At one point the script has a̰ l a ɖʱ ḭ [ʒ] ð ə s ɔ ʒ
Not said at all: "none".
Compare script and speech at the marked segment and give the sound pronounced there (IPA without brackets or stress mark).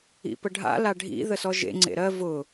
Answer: none